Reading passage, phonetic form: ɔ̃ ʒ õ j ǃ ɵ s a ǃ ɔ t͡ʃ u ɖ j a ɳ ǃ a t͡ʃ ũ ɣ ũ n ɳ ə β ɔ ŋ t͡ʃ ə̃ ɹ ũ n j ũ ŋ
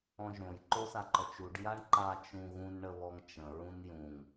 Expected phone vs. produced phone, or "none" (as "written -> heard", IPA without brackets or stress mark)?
ɵ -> o